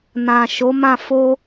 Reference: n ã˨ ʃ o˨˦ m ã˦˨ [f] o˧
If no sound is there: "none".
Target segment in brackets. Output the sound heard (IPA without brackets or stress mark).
f